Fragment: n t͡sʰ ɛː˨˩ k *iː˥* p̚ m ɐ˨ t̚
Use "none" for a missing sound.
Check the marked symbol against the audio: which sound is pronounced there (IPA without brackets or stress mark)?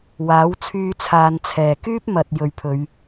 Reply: yː˥